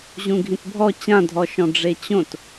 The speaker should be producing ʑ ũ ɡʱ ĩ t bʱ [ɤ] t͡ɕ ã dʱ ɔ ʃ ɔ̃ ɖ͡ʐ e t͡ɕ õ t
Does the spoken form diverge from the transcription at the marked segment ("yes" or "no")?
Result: yes